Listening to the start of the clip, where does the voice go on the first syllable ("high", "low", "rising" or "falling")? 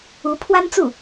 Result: rising